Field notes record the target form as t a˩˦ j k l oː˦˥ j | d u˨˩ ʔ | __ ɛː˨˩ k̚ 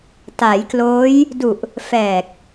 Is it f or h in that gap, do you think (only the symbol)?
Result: f